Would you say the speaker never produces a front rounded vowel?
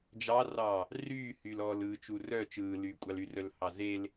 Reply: no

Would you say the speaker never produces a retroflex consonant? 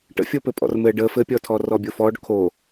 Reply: no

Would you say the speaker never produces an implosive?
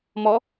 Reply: yes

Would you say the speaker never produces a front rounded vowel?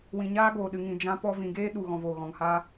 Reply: yes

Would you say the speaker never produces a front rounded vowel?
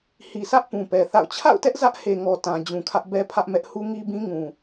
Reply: yes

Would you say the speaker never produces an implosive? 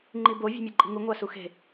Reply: yes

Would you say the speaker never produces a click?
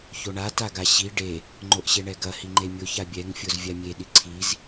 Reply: no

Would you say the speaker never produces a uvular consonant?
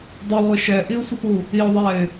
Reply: no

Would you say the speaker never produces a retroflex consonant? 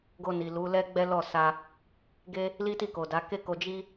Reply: yes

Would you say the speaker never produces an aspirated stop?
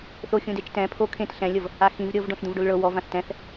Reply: no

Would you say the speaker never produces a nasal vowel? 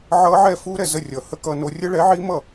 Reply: yes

